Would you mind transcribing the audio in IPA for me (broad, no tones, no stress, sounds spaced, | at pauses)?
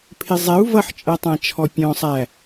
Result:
pʰ ɪ zˤ ɛ u̯ v ʌ ħ t͡ʃʼ ɜ tˤ æ̃ t͡ʃʰ ɔ pʲ ɔ̃ sˤ æ